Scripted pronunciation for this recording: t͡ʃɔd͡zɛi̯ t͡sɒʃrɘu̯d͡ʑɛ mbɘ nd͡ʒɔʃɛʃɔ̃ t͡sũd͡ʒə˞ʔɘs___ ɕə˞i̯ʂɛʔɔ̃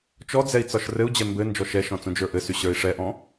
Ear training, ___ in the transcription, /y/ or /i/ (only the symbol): y